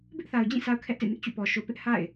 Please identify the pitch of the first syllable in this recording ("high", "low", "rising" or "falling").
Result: high